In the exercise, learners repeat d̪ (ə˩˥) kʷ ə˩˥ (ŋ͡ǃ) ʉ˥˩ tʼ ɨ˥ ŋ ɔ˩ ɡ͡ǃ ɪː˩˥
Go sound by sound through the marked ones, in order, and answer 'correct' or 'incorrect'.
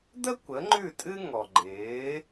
incorrect: ə˥, correct

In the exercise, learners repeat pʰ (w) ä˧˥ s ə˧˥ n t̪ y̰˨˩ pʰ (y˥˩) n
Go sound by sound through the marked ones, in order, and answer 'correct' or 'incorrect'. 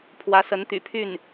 correct, correct

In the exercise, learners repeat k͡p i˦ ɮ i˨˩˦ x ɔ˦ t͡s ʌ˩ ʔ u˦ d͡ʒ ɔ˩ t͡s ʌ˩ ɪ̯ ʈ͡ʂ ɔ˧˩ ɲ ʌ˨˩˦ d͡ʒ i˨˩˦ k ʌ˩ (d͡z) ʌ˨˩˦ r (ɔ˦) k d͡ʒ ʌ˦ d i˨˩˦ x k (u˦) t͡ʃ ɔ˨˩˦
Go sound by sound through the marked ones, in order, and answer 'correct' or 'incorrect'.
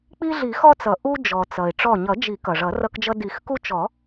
incorrect: ʐ, incorrect: ʌ˦, correct

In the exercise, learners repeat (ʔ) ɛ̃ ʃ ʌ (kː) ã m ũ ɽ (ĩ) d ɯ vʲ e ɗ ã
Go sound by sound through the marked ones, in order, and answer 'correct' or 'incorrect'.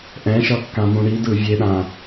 correct, correct, incorrect: i

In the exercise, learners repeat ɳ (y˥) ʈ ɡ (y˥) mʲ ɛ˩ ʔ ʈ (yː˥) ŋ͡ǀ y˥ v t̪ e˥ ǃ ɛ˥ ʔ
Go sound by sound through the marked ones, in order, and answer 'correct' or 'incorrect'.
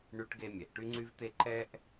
correct, incorrect: e˥, incorrect: y˥

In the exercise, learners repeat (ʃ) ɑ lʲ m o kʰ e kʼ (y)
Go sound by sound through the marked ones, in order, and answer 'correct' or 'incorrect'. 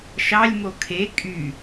correct, correct

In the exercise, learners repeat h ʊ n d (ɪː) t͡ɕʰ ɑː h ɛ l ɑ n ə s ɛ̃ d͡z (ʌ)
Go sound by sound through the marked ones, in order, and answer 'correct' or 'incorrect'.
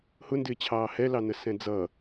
correct, correct

